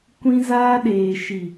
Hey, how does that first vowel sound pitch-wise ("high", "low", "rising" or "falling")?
high